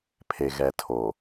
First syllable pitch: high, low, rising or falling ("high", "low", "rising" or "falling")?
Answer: low